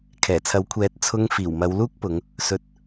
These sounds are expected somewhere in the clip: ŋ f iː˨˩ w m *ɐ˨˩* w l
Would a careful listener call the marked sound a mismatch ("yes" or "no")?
yes